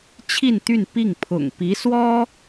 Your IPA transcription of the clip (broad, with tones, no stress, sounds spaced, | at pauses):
t͡ɕʰ i˥˧ n t̪ y˥˧ n p i˥˩ ŋ pʰ ʊ̰˨˩ ŋ p i˧˥ s w ɔ˥